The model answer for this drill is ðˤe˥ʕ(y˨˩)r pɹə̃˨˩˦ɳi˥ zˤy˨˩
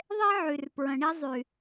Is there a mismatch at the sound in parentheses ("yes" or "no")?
no